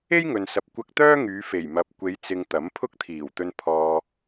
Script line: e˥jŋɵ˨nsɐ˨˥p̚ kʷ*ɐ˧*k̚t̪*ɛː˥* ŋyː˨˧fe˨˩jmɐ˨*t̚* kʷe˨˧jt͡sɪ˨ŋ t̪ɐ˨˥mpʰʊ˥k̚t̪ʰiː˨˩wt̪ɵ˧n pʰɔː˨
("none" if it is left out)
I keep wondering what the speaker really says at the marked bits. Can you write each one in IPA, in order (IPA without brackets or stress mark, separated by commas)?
ɐ˧, œː˥, p̚